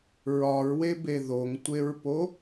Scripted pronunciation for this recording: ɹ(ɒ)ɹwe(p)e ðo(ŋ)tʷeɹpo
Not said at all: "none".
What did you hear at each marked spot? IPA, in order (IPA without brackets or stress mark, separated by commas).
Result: ɒ, b, ŋ